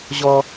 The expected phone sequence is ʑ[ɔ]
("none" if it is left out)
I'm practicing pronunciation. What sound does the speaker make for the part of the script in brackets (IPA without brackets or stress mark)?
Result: ɔ